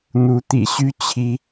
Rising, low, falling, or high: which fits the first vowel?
rising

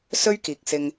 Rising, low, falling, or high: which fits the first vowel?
high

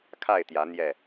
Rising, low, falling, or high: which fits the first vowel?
falling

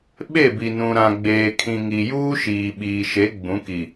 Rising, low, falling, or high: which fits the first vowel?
falling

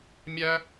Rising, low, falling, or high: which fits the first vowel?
high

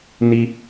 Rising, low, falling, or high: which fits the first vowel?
high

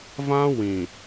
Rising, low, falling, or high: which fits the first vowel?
high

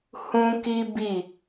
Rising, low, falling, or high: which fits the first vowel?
high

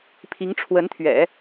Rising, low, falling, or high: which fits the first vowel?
rising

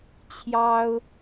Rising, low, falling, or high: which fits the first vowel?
high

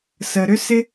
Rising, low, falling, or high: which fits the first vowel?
low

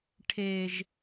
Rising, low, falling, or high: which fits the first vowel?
high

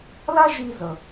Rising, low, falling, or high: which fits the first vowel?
high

